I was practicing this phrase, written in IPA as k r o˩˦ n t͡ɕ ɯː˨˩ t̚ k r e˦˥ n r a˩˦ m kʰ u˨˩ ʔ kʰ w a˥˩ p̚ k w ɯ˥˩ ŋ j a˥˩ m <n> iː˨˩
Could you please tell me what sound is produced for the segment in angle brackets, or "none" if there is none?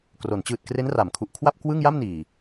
n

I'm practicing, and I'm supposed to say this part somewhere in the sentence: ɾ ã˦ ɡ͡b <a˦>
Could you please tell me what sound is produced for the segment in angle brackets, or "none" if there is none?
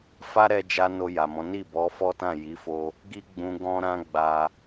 a˧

